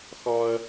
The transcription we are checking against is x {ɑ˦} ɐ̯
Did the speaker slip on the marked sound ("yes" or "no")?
yes